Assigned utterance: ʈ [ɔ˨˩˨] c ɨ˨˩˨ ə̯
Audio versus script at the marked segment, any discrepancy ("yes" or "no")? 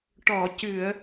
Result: no